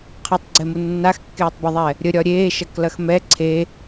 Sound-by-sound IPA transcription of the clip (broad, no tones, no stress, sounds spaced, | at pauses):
qʰ ɐ tˤ ɡ͡ǀ ɛ m u nː a x kː eː tˤ b ɐ ðˤ ɛ | ɾʲ ə ɾʲ ɒ ɾʲ eː ʃ ɐ k l ɐ x m ɛ ǀʰ e